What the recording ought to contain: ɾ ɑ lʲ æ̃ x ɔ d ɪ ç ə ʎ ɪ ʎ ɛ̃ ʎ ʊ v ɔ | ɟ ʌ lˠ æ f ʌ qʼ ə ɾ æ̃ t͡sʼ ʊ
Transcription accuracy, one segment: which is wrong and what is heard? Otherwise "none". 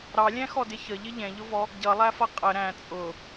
none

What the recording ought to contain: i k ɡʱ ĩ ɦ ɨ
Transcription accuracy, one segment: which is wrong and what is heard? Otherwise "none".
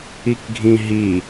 ɨ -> i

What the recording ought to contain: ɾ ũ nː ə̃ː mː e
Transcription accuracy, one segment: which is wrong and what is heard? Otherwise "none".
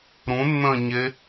mː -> ɲ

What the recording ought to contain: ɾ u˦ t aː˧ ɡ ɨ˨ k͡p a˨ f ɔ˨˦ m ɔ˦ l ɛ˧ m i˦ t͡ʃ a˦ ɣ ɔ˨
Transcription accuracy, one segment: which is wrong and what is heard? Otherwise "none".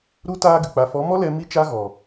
none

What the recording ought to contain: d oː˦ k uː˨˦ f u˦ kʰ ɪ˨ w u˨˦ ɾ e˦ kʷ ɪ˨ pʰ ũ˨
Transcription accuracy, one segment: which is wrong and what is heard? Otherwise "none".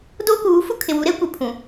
none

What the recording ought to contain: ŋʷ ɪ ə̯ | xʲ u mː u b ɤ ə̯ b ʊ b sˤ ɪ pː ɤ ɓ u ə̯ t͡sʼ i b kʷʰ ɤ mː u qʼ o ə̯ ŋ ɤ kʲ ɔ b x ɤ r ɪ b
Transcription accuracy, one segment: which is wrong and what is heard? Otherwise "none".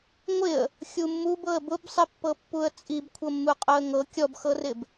ɓ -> pː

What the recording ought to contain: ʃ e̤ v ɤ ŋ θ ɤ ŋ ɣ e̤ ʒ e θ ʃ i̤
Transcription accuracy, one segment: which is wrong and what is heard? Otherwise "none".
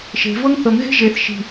none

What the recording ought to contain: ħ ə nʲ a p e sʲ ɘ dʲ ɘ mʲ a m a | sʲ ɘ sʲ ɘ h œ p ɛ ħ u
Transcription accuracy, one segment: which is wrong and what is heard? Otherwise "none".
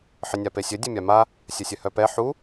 none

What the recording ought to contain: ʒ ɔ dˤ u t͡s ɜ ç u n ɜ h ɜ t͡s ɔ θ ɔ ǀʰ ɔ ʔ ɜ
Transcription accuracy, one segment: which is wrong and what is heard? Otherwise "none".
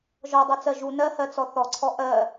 ç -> ʒ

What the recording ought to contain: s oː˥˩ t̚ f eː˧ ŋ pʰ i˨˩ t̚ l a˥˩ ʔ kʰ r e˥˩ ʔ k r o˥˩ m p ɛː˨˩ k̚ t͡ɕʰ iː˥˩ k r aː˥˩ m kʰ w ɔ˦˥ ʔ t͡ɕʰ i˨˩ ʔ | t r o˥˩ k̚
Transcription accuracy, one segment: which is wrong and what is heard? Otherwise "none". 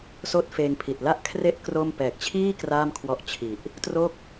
none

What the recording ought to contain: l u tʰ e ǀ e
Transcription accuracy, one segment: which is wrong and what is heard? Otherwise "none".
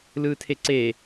u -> ɯ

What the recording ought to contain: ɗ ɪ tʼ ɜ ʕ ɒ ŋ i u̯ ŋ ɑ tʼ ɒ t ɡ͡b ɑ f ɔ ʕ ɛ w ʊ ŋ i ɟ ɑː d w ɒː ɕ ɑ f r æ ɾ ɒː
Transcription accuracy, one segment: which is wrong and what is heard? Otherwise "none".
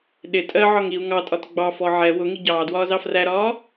ɕ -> z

